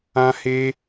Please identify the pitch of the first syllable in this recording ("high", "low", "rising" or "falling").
high